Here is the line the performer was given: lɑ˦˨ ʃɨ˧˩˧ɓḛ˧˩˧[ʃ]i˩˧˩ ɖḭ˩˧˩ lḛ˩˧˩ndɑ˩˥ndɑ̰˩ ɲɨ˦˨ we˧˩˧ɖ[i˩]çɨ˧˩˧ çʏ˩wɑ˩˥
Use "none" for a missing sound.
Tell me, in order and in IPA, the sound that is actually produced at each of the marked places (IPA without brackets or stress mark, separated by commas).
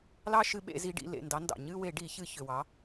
z, i˧˩˧